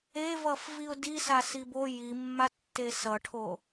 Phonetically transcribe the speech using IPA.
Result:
e v ʌ f v i ʊ̯ d i s a s i b o j i mː a tː e s ʌ ʈʰ o

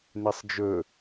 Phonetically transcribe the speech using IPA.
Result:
n e sˤ d͡ʒ ɵ

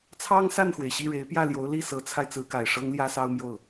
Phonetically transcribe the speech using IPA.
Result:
t͡sʰ ɑ˥ ŋ s a˥˩ n x w e˩ ɪ̯ ɕ i˥˩ ɻ e˧˥ ɪ̯ p j ä˥˩ l j o˧˥ ʊ̯ l i˥˩ s ɤ˧˥ t͡sʰ a˧ ɪ̯ t͡s ɹ̩˧˥ k a˨˩ ɪ̯ ʂ ɤ˥ ŋ l j ä˥ s ɑ˥ ʊ̯ m j o˥˩ ʊ̯

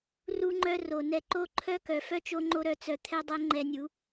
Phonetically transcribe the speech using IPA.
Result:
r u˧ ŋ͡ǃ œ˧ r o˨ n ɛ˧ ǃ o˦ ǃʰ œ˦ k œ˨ f œ˦ t͡ʃ o˦ ŋ͡ǃ o˦ ɾ œ˧ t͡s œ˧ t̪ʰ ɛ˦ dˤ ɛ˦ ŋ͡ǃ ɛ˧ nʲ u˨˦

